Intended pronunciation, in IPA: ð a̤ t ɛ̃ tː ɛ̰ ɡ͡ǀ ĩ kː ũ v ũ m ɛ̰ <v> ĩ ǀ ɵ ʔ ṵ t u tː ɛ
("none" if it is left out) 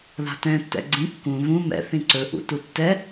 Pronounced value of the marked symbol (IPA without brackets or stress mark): θ